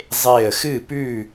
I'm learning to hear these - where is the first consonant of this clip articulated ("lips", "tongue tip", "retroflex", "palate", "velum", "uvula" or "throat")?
tongue tip